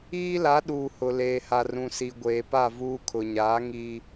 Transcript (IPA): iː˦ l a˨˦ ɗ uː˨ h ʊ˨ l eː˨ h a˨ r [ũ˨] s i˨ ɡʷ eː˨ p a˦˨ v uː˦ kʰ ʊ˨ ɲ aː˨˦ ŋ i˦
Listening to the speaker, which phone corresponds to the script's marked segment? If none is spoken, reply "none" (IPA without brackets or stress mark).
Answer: ũ˨